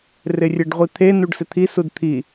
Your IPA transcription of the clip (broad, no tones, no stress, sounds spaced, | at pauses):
r ɪ rʲ e ɖ ʁʷ i t̪ʰ e n u ɖ s ɪ t̪ʰ i s u d t̪ʰ i